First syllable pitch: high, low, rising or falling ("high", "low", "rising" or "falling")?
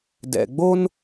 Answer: low